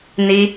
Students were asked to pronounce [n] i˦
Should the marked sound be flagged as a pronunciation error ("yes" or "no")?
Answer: no